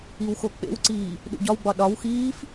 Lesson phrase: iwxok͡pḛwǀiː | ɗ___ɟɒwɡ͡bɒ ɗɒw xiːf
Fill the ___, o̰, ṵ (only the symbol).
ṵ